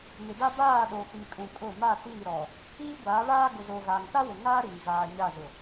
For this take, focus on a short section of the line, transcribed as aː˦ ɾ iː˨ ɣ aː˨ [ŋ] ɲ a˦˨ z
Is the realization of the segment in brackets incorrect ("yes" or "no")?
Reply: yes